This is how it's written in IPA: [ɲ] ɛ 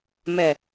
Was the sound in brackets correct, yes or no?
no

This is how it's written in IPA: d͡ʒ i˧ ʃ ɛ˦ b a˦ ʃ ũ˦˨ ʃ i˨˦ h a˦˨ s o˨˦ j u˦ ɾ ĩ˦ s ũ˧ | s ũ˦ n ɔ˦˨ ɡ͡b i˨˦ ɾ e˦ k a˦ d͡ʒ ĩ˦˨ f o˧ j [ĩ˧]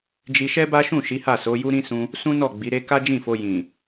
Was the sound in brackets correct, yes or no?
no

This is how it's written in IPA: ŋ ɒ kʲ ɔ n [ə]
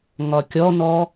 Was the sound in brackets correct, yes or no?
no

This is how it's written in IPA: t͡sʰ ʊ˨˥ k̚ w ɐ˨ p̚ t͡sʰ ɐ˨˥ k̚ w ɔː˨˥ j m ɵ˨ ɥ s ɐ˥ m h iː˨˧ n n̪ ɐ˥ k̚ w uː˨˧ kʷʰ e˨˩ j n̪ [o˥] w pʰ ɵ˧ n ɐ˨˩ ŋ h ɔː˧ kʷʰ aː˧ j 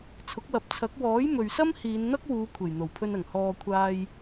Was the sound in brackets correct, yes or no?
no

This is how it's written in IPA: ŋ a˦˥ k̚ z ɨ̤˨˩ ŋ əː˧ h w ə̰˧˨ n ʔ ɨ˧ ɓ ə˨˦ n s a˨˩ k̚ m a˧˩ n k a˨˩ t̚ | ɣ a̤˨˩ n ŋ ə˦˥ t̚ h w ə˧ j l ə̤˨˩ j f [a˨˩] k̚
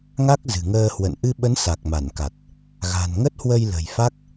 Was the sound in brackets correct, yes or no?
no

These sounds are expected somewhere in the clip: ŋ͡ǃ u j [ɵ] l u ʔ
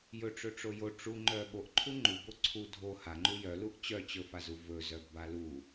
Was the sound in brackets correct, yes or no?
no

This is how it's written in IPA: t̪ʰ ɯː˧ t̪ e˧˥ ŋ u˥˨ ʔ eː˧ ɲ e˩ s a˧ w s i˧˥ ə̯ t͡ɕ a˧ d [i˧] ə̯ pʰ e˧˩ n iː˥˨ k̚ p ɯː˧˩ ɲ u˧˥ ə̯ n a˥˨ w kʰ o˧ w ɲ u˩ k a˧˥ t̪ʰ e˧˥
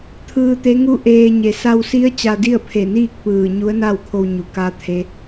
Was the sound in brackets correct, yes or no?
no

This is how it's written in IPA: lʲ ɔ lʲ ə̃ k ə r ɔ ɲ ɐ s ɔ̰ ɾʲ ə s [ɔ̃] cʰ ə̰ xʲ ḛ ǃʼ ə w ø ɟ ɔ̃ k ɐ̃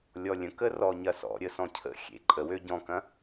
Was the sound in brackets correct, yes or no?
yes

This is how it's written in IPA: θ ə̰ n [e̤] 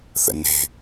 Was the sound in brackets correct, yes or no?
yes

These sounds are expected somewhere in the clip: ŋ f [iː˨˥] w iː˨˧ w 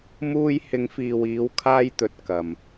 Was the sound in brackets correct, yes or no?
no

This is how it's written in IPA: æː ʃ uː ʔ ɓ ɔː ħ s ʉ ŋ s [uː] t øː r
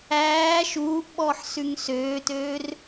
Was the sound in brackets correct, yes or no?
no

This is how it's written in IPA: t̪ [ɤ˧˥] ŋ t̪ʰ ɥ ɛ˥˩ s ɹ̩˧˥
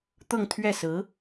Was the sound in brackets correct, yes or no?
no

